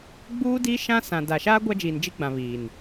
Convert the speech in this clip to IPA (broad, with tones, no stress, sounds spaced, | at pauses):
ɡ͡b uː˦ d i˦ ʃ ã˦ s ã˨ d a˨ ʃ aː˦ ɡʷ a˦ d͡ʒ iː˨ n d͡ʒ i˦ ɡ͡b ã˨ β iː˨ n